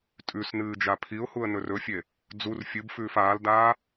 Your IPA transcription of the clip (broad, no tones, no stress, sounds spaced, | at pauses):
tʼ ʉ s n ɨː d͡ʒ a pʰ i ʊ̯ h u ə̯ n ɵ r ɵ fʲ e | d͡z u r fʲ ɨ b f ʉː f aː l d aː